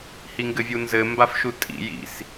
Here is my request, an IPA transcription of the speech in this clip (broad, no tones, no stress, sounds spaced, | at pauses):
h i ŋ ɡ ɘ vʲ u n z ɘ m b a f ʃ u tʼ ḭ j ḭ s